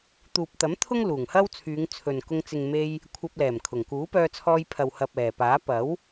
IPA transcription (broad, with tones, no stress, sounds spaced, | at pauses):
t̪ uː˨ p̚ t̪ ɐ˨˥ m t̪ʰ ʊ˥ ŋ l uː˨˩ ŋ h ɐ˥ w t͡sʰ yː˨˧ ŋ t͡sʰ ɵ˨ n k ʊ˧ ŋ t͡s ɪ˨ ŋ m e˧ j | kʷʰ ɐ˧ p̚ l ɛː˨˩ m kʰ ʊ˨˩ ŋ k uː˨˥ p œː˧ t͡sʰ ɔː˧ j pʰ ɐ˨ w h ɐ˨ p̚ ɛː˨˩ p aː˨˥ p ɐ˨˥ w